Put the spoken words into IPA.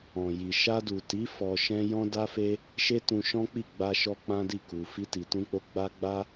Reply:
ɔ̃˨ j i˨ ʃ a˧ d u˨ t i˨˦ f ɔ˧ ʃ ɛ̃˦ j ɔ̃˦ d a˦ f e˦ | ʃ e˦ t ũ˧ ʃ ɔ̃˦ k͡p i˦˨ ɡ͡b a˧ ʃ ɔ˧ k͡p ã˦ d i˦˨ k u˨ f i˧ t i˨ t ũ˧ k͡p o˧ ɡ͡b a˦ ɡ͡b a˦

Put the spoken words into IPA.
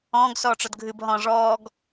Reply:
ɔ̃ː ɡ s ɔː ʈ͡ʂ ɔ d ɡʱ ɨ b ɦ ɔ̃ ʐ ɔː ɡ

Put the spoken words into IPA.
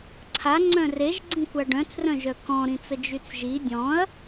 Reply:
ǀʰ a ŋ͡ǀ œ̃ r e ʒ ɡ͡ǀ ĩ kʷ a ɖ œ̃ t͡s r œ̃ ʒ œ k ɔ̃ ɾ ĩ t͡s ə d͡ʒ y t͡s ʒ i dʲ ɔ̃ ɐ̯

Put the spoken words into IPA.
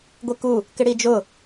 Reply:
ɡʷ e k u | k ɪ ɽ i d͡ʒ ʊ

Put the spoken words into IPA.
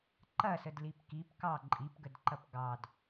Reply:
ǃ ɐ s ə d l i p k i p k ɑ ǃʼ i p ɡ ə d ǃ ɐ p ɡ ɑ d

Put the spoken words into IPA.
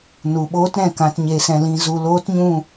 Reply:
n u˨ ɓ oː˦ t ɾ ɛ̃˨ k ã˧ t ɲ e˧ s ɛ̃˧ l ĩ˧ z u˧ l oː˦ t ɲ ũ˦˨

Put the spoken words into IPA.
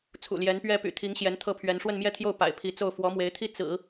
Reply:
t͡sʰ ṵ˨˩ l j ɛ˧˥ n p ɥ ɛ˥ p y̰˨˩ t̪ʰ i˧˥ ŋ ɕ j ɛ˧˥ n t̪ʰ ɤ˥˩ pʰ ɥ ɛ˧˥ n ʂ w ə˥˧ n m j ɛ˥˧ t̪ʰ j o˥˩ ʊ̯ p a̰˨˩ ɪ̯ pʰ i˧˥ t͡s o˥˩ ʊ̯ f w ɔ˧˥ m w e˧˥ ɪ̯ t̪ʰ i˥ t͡s ɹ̩˨˩˦

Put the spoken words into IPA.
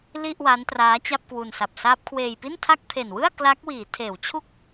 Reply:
l i˥˩ ʔ w aː˦˥ n t r aː˦˥ t͡ɕ a˥˩ p̚ k w u˧ n s a˨˩ p̚ s aː˦˥ p̚ kʰ w eː˧ j p i˥˩ n tʰ a˥˩ k̚ pʰ e˨˩ n w ɯ˥˩ a̯ k l a˦˥ k̚ w iː˩˦ tʰ eː˩˦ w t͡ɕʰ u˥˩ k̚

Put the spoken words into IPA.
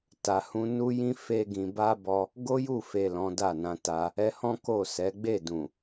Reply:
t a˧ h ũ˦ n u˦ j ĩ˦ f e˦ ɡ ĩ˧ b a˦ b ɔ˦ | ɡ o˦ j u˦˨ f e˨ l ɔ̃˨˦ d a˦˨ n ã˧ t a˧ | ɛ˧ h ɔ̃˦ k o˦˨ s ɛ˨˦ ɡ͡b e˦˨ d ũ˨

